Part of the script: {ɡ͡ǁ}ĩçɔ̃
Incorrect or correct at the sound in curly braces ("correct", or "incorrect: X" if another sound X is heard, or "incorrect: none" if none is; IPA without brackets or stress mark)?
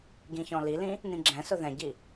incorrect: ɡ